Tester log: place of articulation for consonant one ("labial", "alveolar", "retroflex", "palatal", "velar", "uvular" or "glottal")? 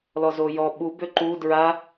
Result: alveolar